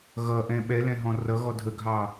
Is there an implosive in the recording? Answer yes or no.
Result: yes